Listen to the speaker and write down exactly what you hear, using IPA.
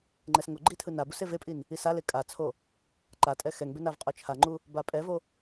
ŋ͡ǃ ɛ s ŋ o ɡ͡ǃ i tʰ ɯ n a b u s e v e pʼ i n | i s a l e kʼ a t͡sʰ o | ǃ a tʼ ɛ x ɛ ŋ b e n a v qʼ o t͡ʃʰ a ŋ͡ǃ u | b a pʼ ɛ v o

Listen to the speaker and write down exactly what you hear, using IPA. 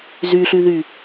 z y ɬ y ð y

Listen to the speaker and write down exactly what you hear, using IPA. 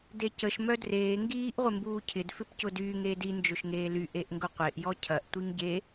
d e c ə ʃ m œ d r eː ŋ ɡ iː ʔ ʁʷ ɪ m b uː cʰ ɪ d f ɪ p c ʊ d yː ŋ eː d i n d͡ʒ ʊ ʃ ŋ eː l y ʔ e ʔ ŋ ɡ ʊ qʷ e ʔ j ɔ cʰ ɐ ʔ tʷ i ŋ ɟ e

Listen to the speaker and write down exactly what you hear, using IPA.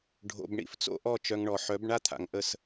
ɖʱ o̰˨ b ɳ ḭ˨ f t͡s o̰˦ ʔ ɔ˦˨ t͡ʃ œ˧ ŋ ɳ ɔ˨ ħ œ˨˦ b ɳ a˦ t̪ʰ a̰˨ ŋ ʔ ə˦˨ s

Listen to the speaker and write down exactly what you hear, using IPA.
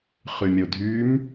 χ y mʲ o dʱ y m

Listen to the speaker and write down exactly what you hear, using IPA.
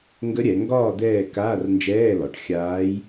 ŋ ɡ ə˧˥ ɾʲ ɛ˩˧ ŋ ɡ ɒː˦˨ d̪ ɛː˦˨ k aː˧˥˧ r n d͡ʒ ɛː˧˥˧ l ɒ˩˧ ʈ xʲ aː˧˥ j

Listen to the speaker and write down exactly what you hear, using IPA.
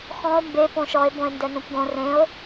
x ɔ̃ o̯ m b e p õ ʃ ɔ e̯ b õ e̯ n d ɛ n ũ p ɡ õ r ẽ o̯

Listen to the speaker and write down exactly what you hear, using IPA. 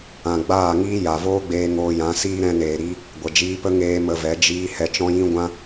ã˨ ɡ͡b aː˦˨ ŋ iː˦ j a˨ v oː˦ ɡ͡b eː˧ ŋ oː˧ j ã˨˦ s iː˦ ɾ ɛ̃˧ n eː˨ ɾ i˦ | ɡʷ ə˨ d͡ʒ iː˧ p ə˦ ŋ eː˦ m ə˧ v ɛ˨˦ d͡ʒ iː˧ h ɛ˨ t͡ʃ ɔ̃˧ j ĩ˧ ɡʷ ã˦

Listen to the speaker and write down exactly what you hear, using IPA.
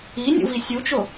i nʲ ṵ v i sʲ u t͡ʃ o

